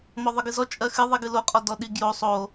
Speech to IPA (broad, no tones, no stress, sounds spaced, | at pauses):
m ɔ ðˤ ɨ ɡ ɨ z ɔ t͡ʃʼ ɜ x ɨ ðˤ i ɡ ɨ l o qʼ ɔ d ɔ ɗ i ɡ j o sˤ o